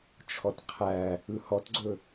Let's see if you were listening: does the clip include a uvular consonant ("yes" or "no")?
yes